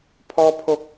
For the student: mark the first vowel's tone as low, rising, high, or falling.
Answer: high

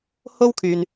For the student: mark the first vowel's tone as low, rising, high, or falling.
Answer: high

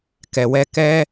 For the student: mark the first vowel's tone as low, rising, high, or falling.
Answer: low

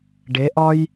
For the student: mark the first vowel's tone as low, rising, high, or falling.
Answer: rising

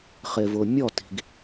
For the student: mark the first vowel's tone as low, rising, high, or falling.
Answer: low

